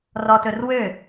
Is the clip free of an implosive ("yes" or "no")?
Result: yes